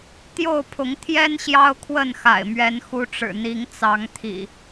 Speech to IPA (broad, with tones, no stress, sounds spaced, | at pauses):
t̪ j o˥˨ ʊ̯ pʰ ʊ˨˦ ŋ t̪ʰ j ɛ˦ n ɕ j ɑ˦ ʊ̯ kʰ w ə˥˨ n x a̰˨˩ ɪ̯ m ɥ ɛ˨˦ n x u˨˦ ʈ͡ʂ ɻ̩˨˩ n̪ i˨˦ ŋ t͡s ɑ˨˦ ŋ t̪ʰ ḭ˨˩